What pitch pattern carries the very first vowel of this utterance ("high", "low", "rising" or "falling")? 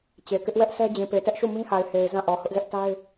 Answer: low